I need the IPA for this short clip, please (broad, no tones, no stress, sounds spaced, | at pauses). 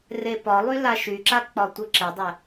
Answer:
r e p ɒ lˠ y l a ʃ y ǁ a k͡p ɒ tʷ ɘ ǁ ɘ dˤ ɛ